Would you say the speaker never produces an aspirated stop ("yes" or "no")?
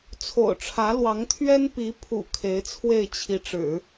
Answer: no